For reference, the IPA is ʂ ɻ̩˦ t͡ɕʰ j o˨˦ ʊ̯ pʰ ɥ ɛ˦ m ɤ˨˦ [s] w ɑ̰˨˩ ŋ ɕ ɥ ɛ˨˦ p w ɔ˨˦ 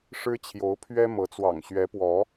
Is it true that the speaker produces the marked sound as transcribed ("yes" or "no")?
no